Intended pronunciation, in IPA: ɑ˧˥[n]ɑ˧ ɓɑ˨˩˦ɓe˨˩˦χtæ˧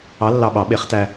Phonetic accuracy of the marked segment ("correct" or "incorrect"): incorrect